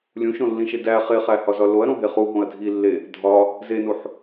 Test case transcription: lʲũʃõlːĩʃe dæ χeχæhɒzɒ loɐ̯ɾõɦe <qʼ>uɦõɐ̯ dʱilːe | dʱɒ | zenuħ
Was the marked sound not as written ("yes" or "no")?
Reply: yes